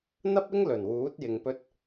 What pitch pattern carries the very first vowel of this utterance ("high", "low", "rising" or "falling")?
high